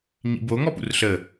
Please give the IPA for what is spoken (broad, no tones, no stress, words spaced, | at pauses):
ɲḭbo ŋɔpṵrɬə